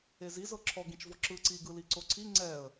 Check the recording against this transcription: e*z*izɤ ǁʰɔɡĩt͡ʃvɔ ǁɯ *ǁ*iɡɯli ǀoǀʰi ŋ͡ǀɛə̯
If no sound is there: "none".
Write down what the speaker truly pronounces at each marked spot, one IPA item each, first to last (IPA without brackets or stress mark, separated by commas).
z, ǀ